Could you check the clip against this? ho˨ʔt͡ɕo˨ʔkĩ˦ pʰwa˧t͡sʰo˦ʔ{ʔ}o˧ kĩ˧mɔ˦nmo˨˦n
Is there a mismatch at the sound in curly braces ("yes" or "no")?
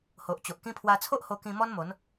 yes